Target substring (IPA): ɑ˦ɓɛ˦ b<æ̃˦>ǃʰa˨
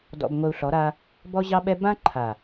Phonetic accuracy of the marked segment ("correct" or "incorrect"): incorrect